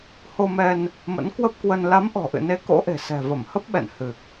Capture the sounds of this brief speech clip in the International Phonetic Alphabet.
h o˧ m ɛ˧ n | m ə̰˧˥ n k w ə˦˥ p̚ k w ə˧ n l a˨˦ m ʔ ɔ̤˨˩ ʔ ɨ̰˧˨ n e˨˦ k o̰˧˥ ʔ e̤˨˩ s ɛ̤˨˩ v ə˧˩ m h ə˦˥ p̚ ɓ ɛ̰˧˨ n h ɨ˨˩ k̚

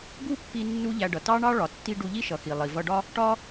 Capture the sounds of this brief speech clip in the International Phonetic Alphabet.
ɡ u˥ pː i˧ nː u˥ ʎ æ˧ ɖ ʌ˩ t ɑ˥ ɳ ɑ˥ ɭ ɒ˩ tː i˥ ɖ u˧ ʎ i˥ ʃ ʌ˩ x i˩ lˠ i˩ v ʌ˧ ɖ ɒ˥ | ʈ ɒ˥

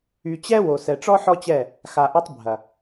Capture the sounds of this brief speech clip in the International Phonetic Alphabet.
y˨ t͡ɕ ɛ˦ w o˨ s ɛ˨ ʈ͡ʂ ɔ˦ ħ ɔ˦ t͡ɕ ɛ˦˨ | x a˨ ʔ ɐ˦ tˤ bʱ ɐ˨

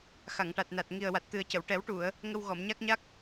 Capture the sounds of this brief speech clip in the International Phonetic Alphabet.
x a˨˩˨ ŋ ʈ a˨˩ t̚ n a˨˩ t̚ ŋ i˨˩ ə̯ w a˨˩ t̚ t̪ ɨ˨˩ ə̯ c ə˨˩˨ w ʈ ɛ˨˩˦ w ʈ u˨˩˨ ə̯ | ŋ ə˧ w ɣ ɔ˨˩˨ m ɲ a˦˥ k̚ ɲ a˦˥ k̚

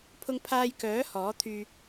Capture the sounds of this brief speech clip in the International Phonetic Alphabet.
pʰ ʊ˧ ŋ pʰ aː˧ j k œː˨˥ h ɔː˨˥ t̪ʰ yː˧

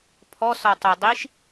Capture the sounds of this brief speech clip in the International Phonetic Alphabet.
pʰ ɔ s ɔ tˤ ə dˤ i ʃ

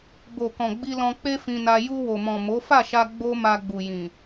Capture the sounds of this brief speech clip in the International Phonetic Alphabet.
b o˨ k ɔ̃˨ ɡ͡b i˧ l ɔ̃˧ k͡p e˦ f ĩ˧ n a˧ j u˧ w o˨ m ɔ̃˨ m o˨˦ f a˦˨ ʃ a˧ ɡ͡b o˦ m a˧ ɡ͡b u˨ j ĩ˨

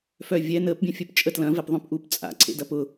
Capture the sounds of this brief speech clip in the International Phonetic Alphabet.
f œ vʲ ɛ n əː p bʲ œ̃ fʲ œ p t͡ʃʼ ə t l ɐ̃ v ɛ p ðˤ œ̃ p ʔ u p t͡sʼ a̰ ǀʰ ḛ d ɐ p ʊ

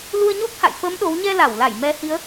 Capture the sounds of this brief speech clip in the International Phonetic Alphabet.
l u˧ ə̯ ɲ o˦˥ k̚ h a̰˧˨ j f əː˨˦ m ɗ o˨˦ w ɲ ɛ˧ l a˧˩ w l a˧˩ j m ɛ˨˦ h i˨˦ ə̯

